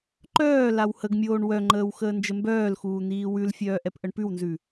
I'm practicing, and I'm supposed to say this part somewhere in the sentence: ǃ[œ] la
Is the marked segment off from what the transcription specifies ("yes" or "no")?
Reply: yes